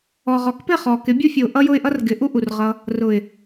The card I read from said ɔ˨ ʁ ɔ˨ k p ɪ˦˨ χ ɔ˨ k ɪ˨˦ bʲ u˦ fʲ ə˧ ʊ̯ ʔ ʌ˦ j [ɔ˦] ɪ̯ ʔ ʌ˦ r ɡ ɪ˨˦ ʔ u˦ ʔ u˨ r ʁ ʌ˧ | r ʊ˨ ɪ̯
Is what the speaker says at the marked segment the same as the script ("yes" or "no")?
no